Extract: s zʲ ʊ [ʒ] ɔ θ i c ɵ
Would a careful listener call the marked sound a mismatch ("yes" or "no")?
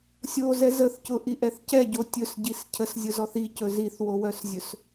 yes